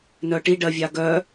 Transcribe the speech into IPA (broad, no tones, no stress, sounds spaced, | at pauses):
n œ ʈ i ɖ ɜ vʲ a ɡ œ